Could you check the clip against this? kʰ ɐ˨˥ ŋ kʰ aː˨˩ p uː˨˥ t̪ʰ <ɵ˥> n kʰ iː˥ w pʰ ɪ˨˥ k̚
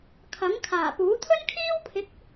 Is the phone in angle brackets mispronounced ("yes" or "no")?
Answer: no